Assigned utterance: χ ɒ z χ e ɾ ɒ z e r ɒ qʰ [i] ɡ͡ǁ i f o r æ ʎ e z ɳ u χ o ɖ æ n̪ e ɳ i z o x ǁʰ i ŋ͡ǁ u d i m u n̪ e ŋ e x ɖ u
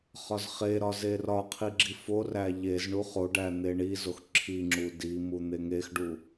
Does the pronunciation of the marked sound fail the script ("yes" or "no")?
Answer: no